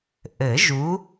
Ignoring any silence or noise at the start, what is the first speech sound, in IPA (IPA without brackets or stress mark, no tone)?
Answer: ʔ